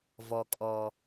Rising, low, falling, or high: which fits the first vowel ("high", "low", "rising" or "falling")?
low